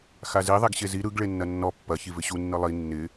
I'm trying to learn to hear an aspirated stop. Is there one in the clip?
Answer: no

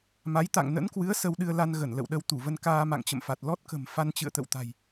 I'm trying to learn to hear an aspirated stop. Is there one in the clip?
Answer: no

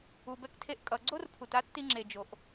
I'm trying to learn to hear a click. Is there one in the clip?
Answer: yes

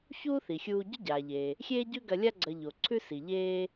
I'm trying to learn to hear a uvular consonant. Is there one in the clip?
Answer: no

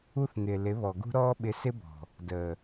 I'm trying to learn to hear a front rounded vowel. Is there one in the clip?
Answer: no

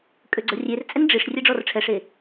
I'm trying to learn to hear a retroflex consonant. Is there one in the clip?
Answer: yes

